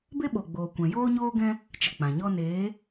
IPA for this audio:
b e˦ ɓ o˨ ɡ͡b oː˨ kʷ ɛ̃˨ j oː˦ ɲ oː˦ ɡ ɛ̃˦ | t͡ʃ ə˨ k͡p ã˨ ɲ ɔ˦ n eː˨˦

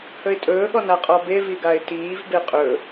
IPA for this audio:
h ɵ ɪ̯ tʼ ɵː ɠ ɔ n a qʼ ɔ b e v i ɡ a ɪ̯ t iː v b e qʼ ɵ

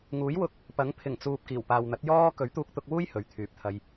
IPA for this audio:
ŋ uː˨˥ j w ʊ˧ k̚ | p ɐ˨˥ ŋ pʰ ɪ˨˩ ŋ t͡s uː˨ p̚ k iː˨˩ w p aː˨ w n̪ ɐ˨˥ t̚ j ɔː˥ k ɵ˨˥ ɥ t̪ uː˧ k̚ t̪ ʊ˧ k̚ w uː˥ j h ɵ˨˥ ɥ t̪ʰ yː˨ p̚ t̪ʰ ɐ˧ j

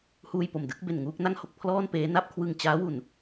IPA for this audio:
h uː˧ j p o˨˩ m d ɯ˦˥ k̚ b e˨˩ n ŋ uː˥˩ k̚ n a˥˩ ŋ h o˥˩ k̚ pʰ l ɔː˥˩ n p eː˦˥ n a˥˩ p̚ kʰ w ɯ˧ ŋ t͡ɕ aː˦˥ w u˨˩ n

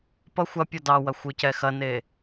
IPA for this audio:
p ʌ xʷ ɐ pʲ ɔ d ɑ w ɐ xʷ ɯ c ɛ x ɐ n e

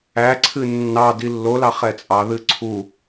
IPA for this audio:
æ ǀʰ ɨ nː ɑ d i lː o l ɑ χ ɛ t͡sʼ ɑ ð ɨ ǀʰ u

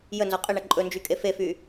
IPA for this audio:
j ə n z ɔ qʼ ə ɳ ɐ ǃʼ ɵ n d͡ʒ y kʼ e f e f y

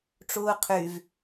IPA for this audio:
ʈ͡ʂ uː qʰ y v

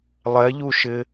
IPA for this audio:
lˠ ɛ ʎ u ʃ ɪ

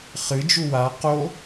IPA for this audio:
χ ɨ d͡ʒ u w a q o

